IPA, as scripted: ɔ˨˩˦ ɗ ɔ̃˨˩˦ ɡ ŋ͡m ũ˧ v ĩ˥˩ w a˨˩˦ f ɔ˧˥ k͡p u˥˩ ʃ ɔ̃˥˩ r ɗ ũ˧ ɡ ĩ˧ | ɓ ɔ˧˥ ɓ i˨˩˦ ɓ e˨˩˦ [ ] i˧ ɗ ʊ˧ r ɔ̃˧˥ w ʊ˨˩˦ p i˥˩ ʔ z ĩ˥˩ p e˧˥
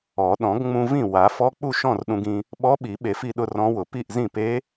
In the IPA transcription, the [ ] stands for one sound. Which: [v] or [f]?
f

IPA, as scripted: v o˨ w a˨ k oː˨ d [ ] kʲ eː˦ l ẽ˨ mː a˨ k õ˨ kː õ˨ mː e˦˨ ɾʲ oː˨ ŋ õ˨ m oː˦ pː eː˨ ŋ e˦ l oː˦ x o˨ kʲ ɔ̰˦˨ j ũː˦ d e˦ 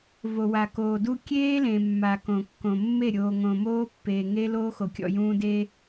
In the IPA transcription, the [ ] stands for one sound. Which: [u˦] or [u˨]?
u˦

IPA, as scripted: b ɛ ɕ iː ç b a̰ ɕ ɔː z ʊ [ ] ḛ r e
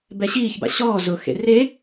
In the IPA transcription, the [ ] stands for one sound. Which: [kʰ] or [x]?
x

